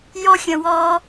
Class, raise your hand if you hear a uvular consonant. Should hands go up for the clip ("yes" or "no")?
no